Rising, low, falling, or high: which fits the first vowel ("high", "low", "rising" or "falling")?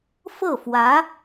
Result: falling